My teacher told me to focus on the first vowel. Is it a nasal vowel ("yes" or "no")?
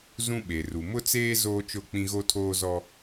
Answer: yes